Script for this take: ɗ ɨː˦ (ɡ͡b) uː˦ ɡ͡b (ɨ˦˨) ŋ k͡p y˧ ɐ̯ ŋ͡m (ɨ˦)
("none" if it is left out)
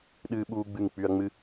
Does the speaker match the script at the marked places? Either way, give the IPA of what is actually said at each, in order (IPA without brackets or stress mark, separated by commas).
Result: ɓ, ɨ˦˨, ɨ˦